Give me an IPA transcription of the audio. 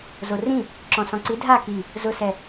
zorĩ | ǁɔ̃sɔ̃ǀi dʱa ki | zʊsɛ

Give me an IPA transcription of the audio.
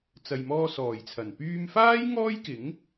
t͡sɐ˨jmɔː˧sɔː˨˩jt͡sʰɐ˨˩n pyː˧mfaː˥j ŋɔː˥jkɪ˨˥ŋ

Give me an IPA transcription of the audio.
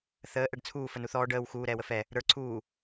θəː ʔɛɖt͡sʰuː fənuθɔː ɖəːw xuː ɾɛːwəfɛ | ɾə˞ ǀʰuː

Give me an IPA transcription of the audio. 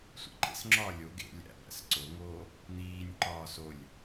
sʷḭǃḛsŋ͡ǁɒː lʲo ɡḛ lʲæ̰ bæ̰sǀoŋoː | n̪iːnʲǃɒːs olʲ

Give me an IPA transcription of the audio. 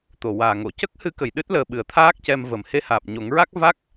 t̪o˨˩waː˨˩ŋo˨˩˨ cə˦˥k̚hɨ˧˥ kə˨˩jɗɨ˦˥t̚ləː˨˩ ɓɨ˨˩ə̯t̪ʰaː˦˥k̚cɛ˧mvə˨˩m he˧haː˨˩p̚ɲo˨˩˦ŋɹa˦˥k̚ va˦˥k̚

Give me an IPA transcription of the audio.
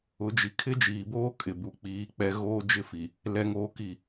ʊ˨˦d͡ʒi˨ kʰɪ˦d͡ʒiː˨boː˦ kʼɪ˨ bu˨k͡piː˨˦k͡pɛ˦ ɣoː˦d͡ʒɪ˦fi˨ | lɛ˦ŋoː˦ki˦˨

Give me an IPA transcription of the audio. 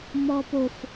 mɔpof

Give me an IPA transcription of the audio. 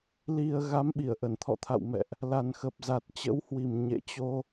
li˨˩ə̯ ɣa˨˦mɓi˧˩ə̯ʔə˧˩n t̪ʰɔ̰˧˨t̪ʰa̰˧˨w mɛ̰˧˨ʔ | la˨˩nxə˨˩p̚ za˨˩t̚t͡ɕə̰˧˥whwi˨˩m ɲḛ˧˨t͡ɕo˧

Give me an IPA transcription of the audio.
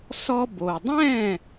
sɔ˧bo˩dˤɛ̃˥˩

